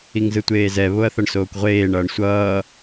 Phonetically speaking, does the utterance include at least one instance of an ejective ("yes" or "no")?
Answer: no